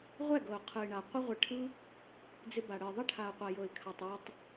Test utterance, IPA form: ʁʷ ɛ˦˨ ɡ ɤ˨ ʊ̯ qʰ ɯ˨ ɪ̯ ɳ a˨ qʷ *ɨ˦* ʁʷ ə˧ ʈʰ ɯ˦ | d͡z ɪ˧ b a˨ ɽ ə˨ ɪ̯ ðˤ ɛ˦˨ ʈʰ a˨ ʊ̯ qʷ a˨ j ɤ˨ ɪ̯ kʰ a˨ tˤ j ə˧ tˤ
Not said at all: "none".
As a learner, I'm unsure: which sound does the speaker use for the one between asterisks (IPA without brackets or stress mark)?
ɪ˦